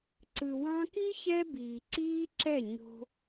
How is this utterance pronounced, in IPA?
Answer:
ǀ ɯ˨ w ɑ̃˧ k i˦ ç ɛ˦ b iː˨ ǀ iː˦ ǁ ɛ˦˨ ɲ o̤˧

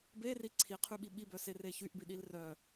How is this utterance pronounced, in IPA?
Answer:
b e r i ǀʰ i qʰ y ɓ i ɓ i b œ s e r e ç y ʔ b i ɗ i l r œ

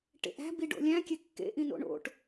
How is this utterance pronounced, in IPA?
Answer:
ʈ ḛ ʔ æ̤ b i ɖ o̰ lʲ æ̃ kʲ e kː ḛ ʔ ĩ n o̰ ɳ o̰ ʈ

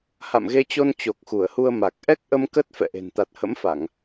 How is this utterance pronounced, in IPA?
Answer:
h a̰˧˨ m ɣ e˧ t͡ɕ o˧ n t͡ɕ o˨˩ k̚ x u˧˩ ə̯ h u˧ ə̯ m a˨˩ k̚ ʔ ɛ˦˥ k̚ ʔ ə˧ m k ə˦˥ t̚ f ɛ̰˧˨ ʔ e̤˨˩ n t̪ a˨˩ t̚ h ə̰˧˥ m f a˧˩˨ ŋ

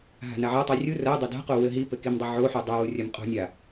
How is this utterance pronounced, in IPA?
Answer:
ɦ a̤ n a ʕ a tˤ i rʲ u r ɐ dˤ ɐ d a̤ q o w ɘ ɦ i p ɘ k i m dˤ ɐ ʕ o ħ u dˤ ɘ w u rʲ ɐ m qʼ o̤ nʲ a

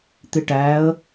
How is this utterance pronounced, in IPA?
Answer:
t̪ ɪ ʈ æ ə̯

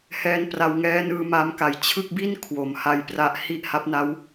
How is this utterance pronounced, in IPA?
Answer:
h ɛː˧ n p r a˧ w ŋ ɛː˦˥ n ɯː˧ m a˦˥ m k a˨˩ j t͡ɕʰ ɯ˥˩ k̚ b i˥˩ n kʰ w o˩˦ m h a˧ j p r a˦˥ ʔ h i˥˩ ʔ h a˦˥ p̚ n a˦˥ w

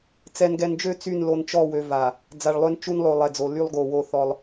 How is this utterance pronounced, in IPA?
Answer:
t͡s ɛ˨ n ɡ ɛ˨ n d͡ʒ ø˦˨ t͡s y˦˨ n l o˨ n t͡ʃ ɔ˦˨ w ø˨ v a˨ | d͡z a˨ ɭ lˠ ø˦ n t͡ʃ u˦ n lˠ o˨ lˠ ɛ˨ d͡z o˨ l y˦ lˠ ɡ o˨ w o˦ θ ɔ˦ lˠ

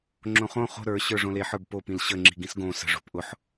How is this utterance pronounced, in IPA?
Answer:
ŋ͡ǁ õ χ õ χ o̤ ɾ ə˞ ɕ ə˞ ʐ õ l e ħ ə˞ b p o p ĩ l ɕ ə ŋ͡ǁ i̤ ɡ ĩ s ɡ õ s ə̤ ʐ o̤ p ʔ ʊ ħ

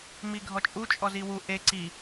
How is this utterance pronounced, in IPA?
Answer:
m i ɡʱ ɔ t͡ʃʼ u t͡ʃʼ ɔ z i w u ʔ e ǀ i

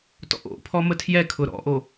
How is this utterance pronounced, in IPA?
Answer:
t ɔ̰ ʔ o̰ pʰ ɔ m ə tʰ j ɛ kʰ ʊ ɾ ɔ̰ ʔ o

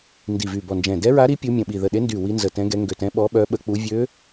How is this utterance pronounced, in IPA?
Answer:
n d i˧˩ v y˧˩ b ɔ˧˩ n d͡ʒ ɛ̃˧˩ d ɛ˧˥ ɹ a˧˥ ɾ i˧˥ pʲ u˧˥ mʲ ə̃˧˩ ɓ i˧˩ ð ə˧˩ ɗ e˧˥ n d y˧˩ w i˧˥ n z ə˧˩ t ɛ̃˧˥ ɡ ɛ˧˥ ŋ ɡ ø˧˩ t ɛ̃˧˥ ɓ ɔ˧˥ ɓ œ˧˥ ɓ ə˧˥ k͡p u˧˥ vʲ ø˧˥

